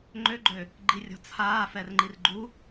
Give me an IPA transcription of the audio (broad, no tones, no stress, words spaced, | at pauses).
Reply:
ŋ͡ǃøɡ͡ǃø | ɡ͡ǃirʲɔ̤t͡sʰaːf ɛrŋ͡ǃirɡ͡ǃu